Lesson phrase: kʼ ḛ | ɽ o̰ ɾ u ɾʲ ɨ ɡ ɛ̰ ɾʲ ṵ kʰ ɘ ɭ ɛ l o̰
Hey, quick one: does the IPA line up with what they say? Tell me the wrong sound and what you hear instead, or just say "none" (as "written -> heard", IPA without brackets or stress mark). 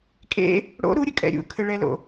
ɡ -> kʼ